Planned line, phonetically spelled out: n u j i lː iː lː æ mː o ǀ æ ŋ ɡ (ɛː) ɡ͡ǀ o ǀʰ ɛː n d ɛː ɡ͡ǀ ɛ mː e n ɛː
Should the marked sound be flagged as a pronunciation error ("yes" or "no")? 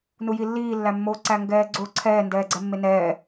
no